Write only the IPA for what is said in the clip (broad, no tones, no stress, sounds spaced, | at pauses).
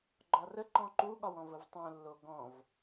ɡ͡ǃ ɒ r ə ǃ ɔ̃ ǃ u ɠ ɒ w ɔ̃ v ə v tˤ õ lː o ɡ ɔ̃ v